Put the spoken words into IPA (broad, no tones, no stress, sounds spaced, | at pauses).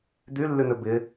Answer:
d̪ y lː y n̪ ʏ b ɪ